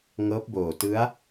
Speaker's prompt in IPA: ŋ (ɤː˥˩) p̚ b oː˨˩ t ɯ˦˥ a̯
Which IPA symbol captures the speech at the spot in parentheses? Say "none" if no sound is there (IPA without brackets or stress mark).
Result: ɤː˦˥